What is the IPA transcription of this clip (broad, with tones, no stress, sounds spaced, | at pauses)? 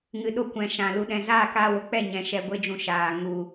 ŋ ɨ˨ ɗ o˧ kʷ ɛ̃˨ ʃ ã˨ l u˨ ɗ ɛ̃˨ z aː˦˨ k aː˧ w o˨ k͡p ɛ˦˨ ɲ ɛ̃˨ ʃ ɛ˧ ɡʷ e˦ d͡ʒ ũ˧ ʃ aː˨ ŋ u˧